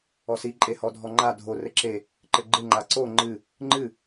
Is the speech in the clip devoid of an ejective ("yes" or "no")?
no